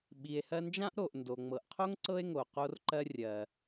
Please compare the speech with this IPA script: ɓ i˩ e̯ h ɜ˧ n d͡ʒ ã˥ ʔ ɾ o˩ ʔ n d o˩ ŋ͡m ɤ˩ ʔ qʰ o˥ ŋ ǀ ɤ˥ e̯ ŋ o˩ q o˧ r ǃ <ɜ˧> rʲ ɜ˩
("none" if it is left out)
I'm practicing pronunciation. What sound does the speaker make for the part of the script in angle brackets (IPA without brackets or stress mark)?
ɜ˧